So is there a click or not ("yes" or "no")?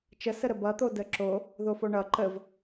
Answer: yes